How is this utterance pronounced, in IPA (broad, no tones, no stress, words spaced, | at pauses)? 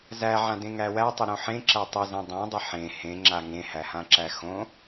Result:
zæʕãdẽ ŋæwæ tˤɪɾõħẽ ǁætˤɪzẽ dˤæ̃dˤɪ ħẽ hẽŋ͡ǁa ŋẽhæhãǁæ xõ